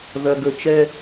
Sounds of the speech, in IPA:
ð ɐ˨ ɡ ɵ˨ t͡ʃ ɛ˦

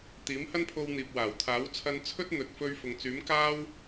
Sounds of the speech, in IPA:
t̪ iː˨˥ m h ɐ˥ n pʰ o˧ w n̪ iː˨ p̚ w aː˨˩ w t̪ʰ aː˨˥ w t͡sʰ ɐ˧ n t͡sʰ ɵ˥ t̚ n̪ ɵ˨ t̚ f ɵ˧ ɥ f ʊ˨ ŋ t͡s yː˨˥ m k aː˥ w

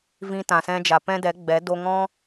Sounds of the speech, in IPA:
v ĩ˧ t ã˨ s ɛ̃˧ d͡ʒ a˨ p ɛ̃˦ d ɛ˨˦ ɡ͡b ɛ˨˦ d o˧ ŋ ɔ̃˦

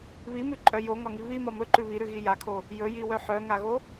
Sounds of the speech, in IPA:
β i m ʉ ǃʼ œ j o ŋ ɒ ŋ i β i m ɒ m ɵ ǃ ʉ β i ɾ ʉ ɣ i j a kʰ o | j ɵ j i w œ ħ œ ŋ a ɣ o

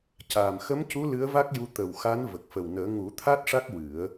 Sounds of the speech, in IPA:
c aː˨˩ m x ə˧˥ m c u˧˥ l ɨ˧˥ ə̯ v a˦˥ k̚ j u˧ t̪ ə˨˩ w x a˧˥ n v ə˨˩ k̚ f ə˨˩ w n əː˨˩˦ ŋ u˨˩˦ t̪ʰ a˦˥ t̚ ʂ a˦˥ k̚ w ɨ˨˩˦ ə̯

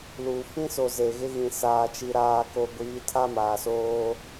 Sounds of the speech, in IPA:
l u˨ f ĩ˦ s o˨ z e˨ ɣ ɪ˦ ɣ ĩ˨ s aː˨ t͡ʃ i˨ ɾ aː˨ k o˨ ɡʷ iː˨˦ tʰ a˦ m aː˨ s oː˦

